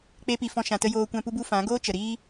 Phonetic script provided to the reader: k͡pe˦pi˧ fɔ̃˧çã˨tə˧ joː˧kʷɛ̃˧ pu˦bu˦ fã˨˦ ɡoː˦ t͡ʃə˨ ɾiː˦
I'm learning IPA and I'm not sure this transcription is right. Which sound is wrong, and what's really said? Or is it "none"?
ç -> ʃ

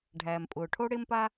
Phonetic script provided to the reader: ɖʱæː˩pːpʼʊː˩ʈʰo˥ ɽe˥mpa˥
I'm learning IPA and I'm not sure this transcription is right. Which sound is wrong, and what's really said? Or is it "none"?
pː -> m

